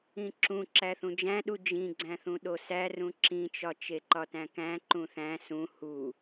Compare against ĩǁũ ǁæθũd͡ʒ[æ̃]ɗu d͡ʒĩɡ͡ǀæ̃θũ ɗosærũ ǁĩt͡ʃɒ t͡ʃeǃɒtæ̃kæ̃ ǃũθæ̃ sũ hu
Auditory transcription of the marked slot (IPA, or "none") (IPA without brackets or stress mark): æ̃